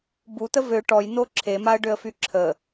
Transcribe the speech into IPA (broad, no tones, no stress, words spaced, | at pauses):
but̪ə vø ʈɔjn̪o ǁʰemaə̯ɖøə̯fy ǁʰə